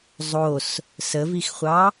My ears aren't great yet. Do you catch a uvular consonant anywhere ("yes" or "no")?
yes